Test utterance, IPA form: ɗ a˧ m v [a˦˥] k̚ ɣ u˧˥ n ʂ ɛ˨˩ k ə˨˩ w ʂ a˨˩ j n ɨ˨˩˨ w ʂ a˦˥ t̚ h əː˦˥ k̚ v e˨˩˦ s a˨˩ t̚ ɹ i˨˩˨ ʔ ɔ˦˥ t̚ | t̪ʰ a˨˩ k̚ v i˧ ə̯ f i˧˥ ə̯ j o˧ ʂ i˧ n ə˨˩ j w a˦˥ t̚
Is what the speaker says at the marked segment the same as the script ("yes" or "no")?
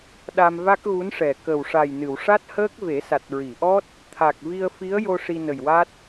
yes